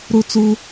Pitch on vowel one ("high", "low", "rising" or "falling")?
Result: high